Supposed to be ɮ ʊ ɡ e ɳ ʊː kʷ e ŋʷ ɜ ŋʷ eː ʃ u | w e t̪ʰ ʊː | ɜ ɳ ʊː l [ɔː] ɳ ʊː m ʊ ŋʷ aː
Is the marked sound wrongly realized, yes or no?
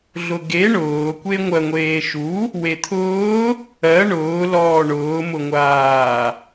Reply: no